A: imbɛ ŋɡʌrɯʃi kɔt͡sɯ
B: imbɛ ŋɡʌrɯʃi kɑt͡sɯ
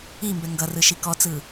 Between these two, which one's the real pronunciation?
A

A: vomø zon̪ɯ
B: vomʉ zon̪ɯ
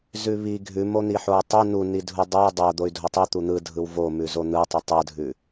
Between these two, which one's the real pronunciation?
B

